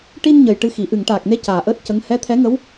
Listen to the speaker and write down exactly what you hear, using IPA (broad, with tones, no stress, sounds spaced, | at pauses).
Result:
ʈ i˧ n ɲ ə˨˩ j ʈ ɨ˧ x i˨˩˨ ʔ ɨ˨˩˨ ŋ ʈ aː˨˩ k̚ n e˧ c aː˨˩ ʔ əː˦˥ t̚ c ə˧˥ ŋ h ɛ˧˥ t̪ʰ ɛ˧˥ ŋ ə˧˥ w